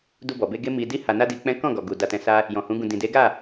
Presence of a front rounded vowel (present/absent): absent